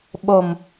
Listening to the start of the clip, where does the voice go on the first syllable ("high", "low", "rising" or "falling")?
low